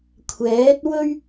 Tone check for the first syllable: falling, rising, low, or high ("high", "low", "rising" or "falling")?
rising